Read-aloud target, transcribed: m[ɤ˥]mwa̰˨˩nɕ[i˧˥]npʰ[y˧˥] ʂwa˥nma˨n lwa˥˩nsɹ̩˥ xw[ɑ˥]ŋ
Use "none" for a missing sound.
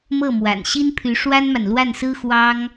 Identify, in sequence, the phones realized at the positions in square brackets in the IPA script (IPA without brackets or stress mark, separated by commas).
ɤ˥˩, i˥, y˧˥, ɑ˥